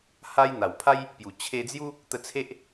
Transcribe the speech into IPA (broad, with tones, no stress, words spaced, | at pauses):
ha˦j n̪a˨˩wpʰa˦j | pju˨˩ t͡ɕʰe˧d͡zju˦ | t̪ə˧t͡sʰe˦ʔ